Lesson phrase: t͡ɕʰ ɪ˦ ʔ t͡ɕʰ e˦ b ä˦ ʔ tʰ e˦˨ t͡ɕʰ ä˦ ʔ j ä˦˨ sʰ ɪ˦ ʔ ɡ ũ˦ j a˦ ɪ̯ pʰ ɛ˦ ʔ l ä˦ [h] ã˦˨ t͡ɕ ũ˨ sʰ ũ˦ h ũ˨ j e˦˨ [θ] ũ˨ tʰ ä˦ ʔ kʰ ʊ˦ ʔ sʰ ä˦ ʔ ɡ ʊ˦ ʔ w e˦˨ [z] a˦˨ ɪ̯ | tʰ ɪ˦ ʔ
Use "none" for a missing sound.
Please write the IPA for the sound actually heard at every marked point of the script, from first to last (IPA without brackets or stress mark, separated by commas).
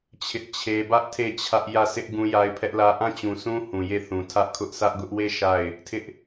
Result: ʔ, θ, ʃ